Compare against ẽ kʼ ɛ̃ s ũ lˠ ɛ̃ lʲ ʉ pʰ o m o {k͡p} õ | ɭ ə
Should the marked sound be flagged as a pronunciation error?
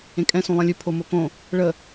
yes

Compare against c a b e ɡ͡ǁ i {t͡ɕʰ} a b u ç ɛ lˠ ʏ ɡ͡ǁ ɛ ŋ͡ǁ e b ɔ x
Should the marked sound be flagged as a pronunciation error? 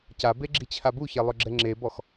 no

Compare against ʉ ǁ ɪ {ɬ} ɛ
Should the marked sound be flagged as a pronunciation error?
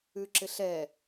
no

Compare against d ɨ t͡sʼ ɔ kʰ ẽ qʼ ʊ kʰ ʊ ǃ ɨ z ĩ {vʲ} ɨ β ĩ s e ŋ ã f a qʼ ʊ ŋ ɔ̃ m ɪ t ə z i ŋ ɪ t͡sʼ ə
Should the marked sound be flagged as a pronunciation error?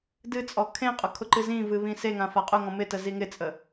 yes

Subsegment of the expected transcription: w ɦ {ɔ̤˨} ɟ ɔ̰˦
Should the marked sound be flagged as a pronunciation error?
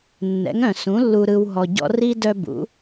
yes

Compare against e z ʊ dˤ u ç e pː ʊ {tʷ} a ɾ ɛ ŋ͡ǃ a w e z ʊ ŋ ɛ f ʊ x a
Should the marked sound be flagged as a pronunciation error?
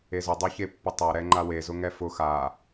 yes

